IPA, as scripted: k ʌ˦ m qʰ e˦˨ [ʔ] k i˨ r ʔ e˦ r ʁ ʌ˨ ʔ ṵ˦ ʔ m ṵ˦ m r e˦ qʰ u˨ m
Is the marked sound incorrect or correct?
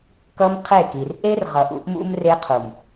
incorrect